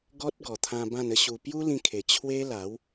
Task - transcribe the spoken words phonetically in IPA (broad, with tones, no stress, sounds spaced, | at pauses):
ɡ ɔ˦ t̚ ɡ ɔ˨˩ t̪ʰ ã˧ b ã˥˧ n ə˦ ɕ u˧ p j u˦ l ĩ˧ kʰ e˨˩ t͡ɕʰ w e˦ l a˨˦ w